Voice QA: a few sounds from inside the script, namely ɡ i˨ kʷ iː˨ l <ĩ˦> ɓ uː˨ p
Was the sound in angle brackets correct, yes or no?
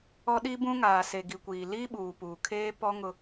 no